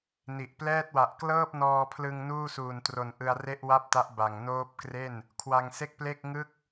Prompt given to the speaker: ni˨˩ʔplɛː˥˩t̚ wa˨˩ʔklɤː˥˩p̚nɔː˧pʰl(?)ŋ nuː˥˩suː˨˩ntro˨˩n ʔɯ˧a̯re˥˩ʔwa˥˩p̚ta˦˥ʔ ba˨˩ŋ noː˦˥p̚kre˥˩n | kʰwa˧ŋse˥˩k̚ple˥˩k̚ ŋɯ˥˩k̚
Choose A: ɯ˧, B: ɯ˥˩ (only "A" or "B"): A